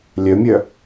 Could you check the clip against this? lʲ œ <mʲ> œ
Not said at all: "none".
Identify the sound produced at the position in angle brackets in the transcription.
mʲ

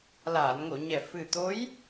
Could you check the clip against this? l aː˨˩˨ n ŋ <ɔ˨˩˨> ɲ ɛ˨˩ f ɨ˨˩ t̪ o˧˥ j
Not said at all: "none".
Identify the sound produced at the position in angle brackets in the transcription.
o˨˩˨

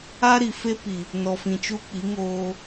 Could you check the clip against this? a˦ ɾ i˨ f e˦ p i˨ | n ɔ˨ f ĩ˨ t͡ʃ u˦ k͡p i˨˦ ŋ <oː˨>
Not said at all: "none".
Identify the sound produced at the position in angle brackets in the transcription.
oː˦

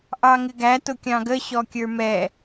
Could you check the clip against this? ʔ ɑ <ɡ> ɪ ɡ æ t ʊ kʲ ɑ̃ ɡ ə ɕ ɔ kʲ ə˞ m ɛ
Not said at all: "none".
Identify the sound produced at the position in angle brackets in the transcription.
ŋ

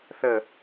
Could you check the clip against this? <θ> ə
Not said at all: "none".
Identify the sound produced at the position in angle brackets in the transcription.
θ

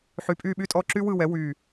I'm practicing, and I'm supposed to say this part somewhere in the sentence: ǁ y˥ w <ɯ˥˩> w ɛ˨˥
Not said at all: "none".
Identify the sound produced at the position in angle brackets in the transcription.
ɯ˥˩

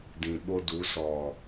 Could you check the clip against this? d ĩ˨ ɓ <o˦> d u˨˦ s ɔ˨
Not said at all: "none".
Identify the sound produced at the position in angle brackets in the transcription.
o˦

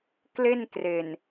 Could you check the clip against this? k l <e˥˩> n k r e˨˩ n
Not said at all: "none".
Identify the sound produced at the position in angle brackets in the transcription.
e˥˩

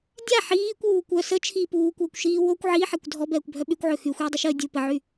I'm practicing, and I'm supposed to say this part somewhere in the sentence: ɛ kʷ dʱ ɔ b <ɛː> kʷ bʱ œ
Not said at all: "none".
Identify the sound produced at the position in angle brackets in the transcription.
ɛː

